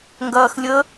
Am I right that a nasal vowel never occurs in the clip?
yes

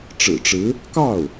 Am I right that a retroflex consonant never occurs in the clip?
no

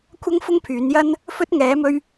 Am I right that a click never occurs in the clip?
yes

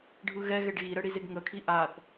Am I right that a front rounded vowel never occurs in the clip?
yes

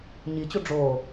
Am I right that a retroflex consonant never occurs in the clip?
no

